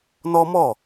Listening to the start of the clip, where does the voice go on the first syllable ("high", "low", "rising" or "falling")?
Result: high